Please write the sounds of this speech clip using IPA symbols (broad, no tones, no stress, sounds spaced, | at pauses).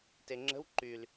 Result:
t e ŋ͡ǁ ə̤ w ǃ y l